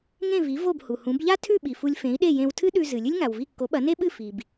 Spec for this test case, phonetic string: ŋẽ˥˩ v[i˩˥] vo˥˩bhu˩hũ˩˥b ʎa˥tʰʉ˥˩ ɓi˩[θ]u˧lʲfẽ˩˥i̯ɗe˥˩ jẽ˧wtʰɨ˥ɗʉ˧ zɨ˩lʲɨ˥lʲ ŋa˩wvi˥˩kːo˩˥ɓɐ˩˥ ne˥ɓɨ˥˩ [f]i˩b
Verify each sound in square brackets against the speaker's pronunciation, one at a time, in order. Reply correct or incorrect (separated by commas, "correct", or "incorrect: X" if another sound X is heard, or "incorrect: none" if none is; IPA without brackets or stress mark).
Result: correct, incorrect: f, correct